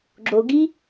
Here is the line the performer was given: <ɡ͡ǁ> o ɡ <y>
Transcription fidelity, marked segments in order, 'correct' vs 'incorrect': correct, incorrect

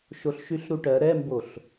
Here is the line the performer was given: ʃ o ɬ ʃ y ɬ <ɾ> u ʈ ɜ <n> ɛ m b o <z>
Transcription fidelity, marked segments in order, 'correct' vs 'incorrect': correct, incorrect, incorrect

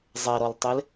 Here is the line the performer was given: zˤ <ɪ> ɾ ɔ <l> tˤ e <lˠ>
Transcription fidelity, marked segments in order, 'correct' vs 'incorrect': incorrect, correct, incorrect

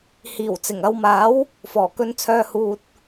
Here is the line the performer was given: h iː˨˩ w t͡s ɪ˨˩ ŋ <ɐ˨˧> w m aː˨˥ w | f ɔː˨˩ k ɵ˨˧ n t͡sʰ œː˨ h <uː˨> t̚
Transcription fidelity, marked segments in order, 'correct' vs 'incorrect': correct, correct

